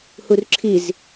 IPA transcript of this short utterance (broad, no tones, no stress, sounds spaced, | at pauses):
h u r ǁʰ i z